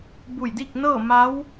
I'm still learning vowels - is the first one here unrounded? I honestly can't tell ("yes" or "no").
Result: no